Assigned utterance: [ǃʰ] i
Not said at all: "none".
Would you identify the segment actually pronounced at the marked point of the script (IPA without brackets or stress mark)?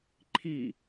ǃʰ